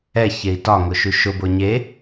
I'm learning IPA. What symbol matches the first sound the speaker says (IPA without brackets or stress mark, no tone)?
ɛ